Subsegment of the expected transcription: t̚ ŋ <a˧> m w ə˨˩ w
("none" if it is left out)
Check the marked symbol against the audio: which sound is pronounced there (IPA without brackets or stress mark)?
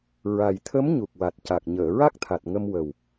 ə˧